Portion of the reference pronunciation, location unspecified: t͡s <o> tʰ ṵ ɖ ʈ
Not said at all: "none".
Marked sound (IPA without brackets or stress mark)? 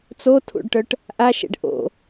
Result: o